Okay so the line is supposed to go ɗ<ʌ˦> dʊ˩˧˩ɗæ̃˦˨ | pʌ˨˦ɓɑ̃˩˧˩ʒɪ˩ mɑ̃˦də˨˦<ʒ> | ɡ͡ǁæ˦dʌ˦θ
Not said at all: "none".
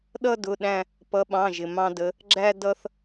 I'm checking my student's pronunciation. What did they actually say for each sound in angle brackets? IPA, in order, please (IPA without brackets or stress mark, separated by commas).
ʌ˦, none